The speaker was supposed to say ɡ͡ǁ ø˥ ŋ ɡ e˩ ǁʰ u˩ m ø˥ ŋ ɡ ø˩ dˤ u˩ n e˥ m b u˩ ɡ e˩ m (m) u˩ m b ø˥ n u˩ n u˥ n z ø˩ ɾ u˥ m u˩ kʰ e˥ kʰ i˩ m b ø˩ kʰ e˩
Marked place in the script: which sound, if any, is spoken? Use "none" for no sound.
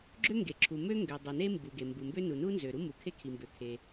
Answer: b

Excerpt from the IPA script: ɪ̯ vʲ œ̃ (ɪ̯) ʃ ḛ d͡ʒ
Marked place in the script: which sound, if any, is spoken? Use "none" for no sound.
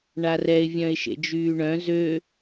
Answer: ɪ̯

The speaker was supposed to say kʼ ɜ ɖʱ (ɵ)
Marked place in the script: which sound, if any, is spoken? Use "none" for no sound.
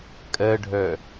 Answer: œ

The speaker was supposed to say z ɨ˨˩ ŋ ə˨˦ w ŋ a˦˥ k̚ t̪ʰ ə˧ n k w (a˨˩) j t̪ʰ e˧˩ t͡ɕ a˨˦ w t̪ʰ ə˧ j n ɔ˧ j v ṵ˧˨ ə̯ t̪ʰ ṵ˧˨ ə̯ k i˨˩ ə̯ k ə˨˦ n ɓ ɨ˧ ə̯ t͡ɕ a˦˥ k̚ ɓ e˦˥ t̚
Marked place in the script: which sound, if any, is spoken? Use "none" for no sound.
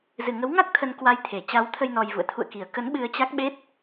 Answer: a˧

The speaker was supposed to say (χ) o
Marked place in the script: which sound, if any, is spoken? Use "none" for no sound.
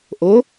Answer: ʔ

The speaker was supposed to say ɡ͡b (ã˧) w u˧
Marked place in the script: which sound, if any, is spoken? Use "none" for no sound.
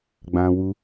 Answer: ã˧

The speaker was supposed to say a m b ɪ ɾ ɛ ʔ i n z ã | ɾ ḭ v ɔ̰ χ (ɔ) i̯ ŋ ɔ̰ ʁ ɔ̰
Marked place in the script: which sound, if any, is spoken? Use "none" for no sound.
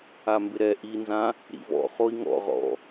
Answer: o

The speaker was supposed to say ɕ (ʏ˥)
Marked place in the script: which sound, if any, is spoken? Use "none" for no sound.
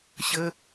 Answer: ə˥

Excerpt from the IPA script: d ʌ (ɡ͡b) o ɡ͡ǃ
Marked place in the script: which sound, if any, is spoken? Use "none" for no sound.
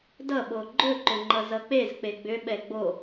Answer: ɓ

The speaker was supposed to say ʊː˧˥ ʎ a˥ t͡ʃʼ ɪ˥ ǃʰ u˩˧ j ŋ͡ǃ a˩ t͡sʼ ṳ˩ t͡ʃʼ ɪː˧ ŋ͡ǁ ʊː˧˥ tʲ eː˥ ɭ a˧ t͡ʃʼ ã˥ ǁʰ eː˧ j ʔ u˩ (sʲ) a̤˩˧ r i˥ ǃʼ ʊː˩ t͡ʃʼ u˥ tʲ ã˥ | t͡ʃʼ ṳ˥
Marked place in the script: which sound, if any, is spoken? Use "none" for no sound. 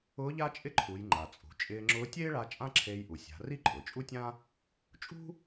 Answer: sʲ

